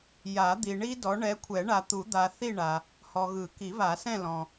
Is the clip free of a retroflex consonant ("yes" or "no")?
no